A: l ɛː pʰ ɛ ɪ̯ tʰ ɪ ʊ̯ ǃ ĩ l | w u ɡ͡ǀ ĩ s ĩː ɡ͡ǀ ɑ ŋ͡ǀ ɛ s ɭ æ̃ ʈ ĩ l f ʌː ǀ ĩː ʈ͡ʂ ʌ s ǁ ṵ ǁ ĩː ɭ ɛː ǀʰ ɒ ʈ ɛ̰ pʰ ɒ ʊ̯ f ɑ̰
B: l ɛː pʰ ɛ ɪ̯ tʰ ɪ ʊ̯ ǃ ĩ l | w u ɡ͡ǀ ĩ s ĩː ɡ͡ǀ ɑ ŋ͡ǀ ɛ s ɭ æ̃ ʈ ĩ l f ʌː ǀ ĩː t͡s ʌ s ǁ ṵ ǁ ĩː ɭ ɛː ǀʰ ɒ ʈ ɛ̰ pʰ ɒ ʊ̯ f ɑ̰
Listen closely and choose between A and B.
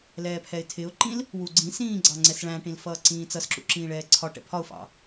B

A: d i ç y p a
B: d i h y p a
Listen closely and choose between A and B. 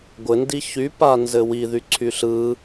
A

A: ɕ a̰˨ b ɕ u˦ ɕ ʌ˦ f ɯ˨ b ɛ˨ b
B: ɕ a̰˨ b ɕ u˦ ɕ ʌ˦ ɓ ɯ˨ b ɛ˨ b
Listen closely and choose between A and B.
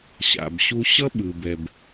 B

